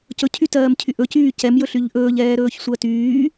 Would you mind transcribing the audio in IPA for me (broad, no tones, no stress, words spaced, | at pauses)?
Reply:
cɵ cʰytɜːmcʰyʔɵ cyːcɛm jɵɬyʎʔɵːʎ ɛːɾɵːçsʷɜtyː